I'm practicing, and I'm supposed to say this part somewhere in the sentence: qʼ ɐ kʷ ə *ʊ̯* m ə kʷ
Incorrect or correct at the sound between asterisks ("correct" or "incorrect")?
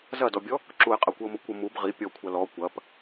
correct